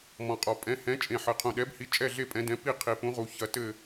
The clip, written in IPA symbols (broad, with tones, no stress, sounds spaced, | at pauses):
m ɔ̃˨˩ qʼ ɔ˨˩ pʼ ɛ̃˨˥ h ɛ̃˨˥ t͡ʃʼ ẽ˨˩ ħ ɘ˨˩ qʰ ũ˨˩ ɗ ɛ˨˥ b h i˨˥ t͡ʃʼ ɛ˥˨ ɮ e˥˨ pʼ ɛ̃˨˥ d ɛ̃˨˥ p i˥˨ qʰ i˨˩ p ũ˨˥ ʁ u˨˩ ç ɐ˨˥ t ɘ˥˨